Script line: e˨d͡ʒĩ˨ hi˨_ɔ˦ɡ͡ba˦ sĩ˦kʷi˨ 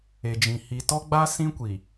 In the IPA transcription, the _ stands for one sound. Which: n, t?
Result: t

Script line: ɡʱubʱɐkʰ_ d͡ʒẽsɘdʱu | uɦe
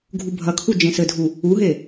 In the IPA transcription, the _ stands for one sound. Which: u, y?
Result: u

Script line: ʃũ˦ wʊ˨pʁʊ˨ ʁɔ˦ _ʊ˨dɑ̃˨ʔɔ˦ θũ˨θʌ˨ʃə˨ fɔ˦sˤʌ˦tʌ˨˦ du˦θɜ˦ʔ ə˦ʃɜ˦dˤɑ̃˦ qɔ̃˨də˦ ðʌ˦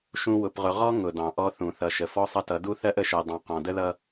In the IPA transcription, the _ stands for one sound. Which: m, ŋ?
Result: ŋ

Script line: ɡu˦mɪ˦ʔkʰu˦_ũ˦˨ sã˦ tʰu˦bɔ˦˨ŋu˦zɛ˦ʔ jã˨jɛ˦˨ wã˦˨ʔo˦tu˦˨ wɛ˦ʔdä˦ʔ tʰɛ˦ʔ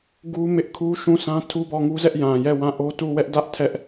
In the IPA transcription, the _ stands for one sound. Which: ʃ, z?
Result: ʃ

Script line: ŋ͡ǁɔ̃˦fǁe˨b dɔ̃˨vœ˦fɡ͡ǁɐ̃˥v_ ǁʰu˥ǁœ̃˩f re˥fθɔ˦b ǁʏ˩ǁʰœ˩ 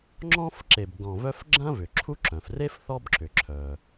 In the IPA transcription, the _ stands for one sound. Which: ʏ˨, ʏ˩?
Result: ʏ˩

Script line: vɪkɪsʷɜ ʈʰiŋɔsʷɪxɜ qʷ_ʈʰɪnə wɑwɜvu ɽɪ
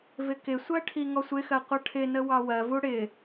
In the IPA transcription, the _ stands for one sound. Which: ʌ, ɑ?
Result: ʌ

